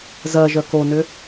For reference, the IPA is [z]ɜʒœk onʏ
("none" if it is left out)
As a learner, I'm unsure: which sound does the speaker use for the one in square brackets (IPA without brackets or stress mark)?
z